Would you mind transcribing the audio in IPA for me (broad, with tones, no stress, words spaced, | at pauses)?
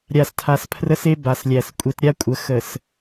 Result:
ɾʲa˨stʰa˨spʰrə˦se˦ ba˨slʲæ˨s kʷʼe˦t ɾʲa˦kʷʼə˨ xə˨s